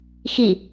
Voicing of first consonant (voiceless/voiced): voiceless